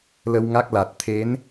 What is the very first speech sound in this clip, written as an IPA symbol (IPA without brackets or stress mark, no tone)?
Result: l